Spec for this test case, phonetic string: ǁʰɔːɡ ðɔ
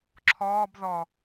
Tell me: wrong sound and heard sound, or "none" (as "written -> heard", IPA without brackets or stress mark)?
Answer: ɡ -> b